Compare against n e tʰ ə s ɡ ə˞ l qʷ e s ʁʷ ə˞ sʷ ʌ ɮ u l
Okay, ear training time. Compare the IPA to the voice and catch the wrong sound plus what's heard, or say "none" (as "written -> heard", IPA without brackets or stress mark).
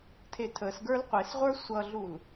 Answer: n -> tʰ